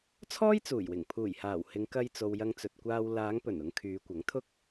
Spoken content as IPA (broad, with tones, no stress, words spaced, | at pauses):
t͡sʰɔː˥jt͡suː˨˩jwɪ˨˩ŋ pʰuː˨˩jhaː˨˩w hɪ˨˧ŋkɐ˧jt͡so˨w jɐ˧ŋt͡sɵ˨t̚kʷaː˧w laː˨˧ŋpɵ˨˩n ʊ˧ŋkʰyː˨˧ kʷɐ˨˥ŋt̪ʰʊ˥k̚